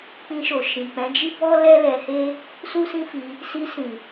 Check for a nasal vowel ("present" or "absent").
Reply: present